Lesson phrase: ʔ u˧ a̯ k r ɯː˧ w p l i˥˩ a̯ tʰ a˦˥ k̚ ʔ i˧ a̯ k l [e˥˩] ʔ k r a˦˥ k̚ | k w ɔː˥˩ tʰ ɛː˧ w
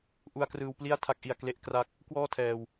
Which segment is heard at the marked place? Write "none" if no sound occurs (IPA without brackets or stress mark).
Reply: e˥˩